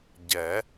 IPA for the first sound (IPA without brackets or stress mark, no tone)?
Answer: ɟ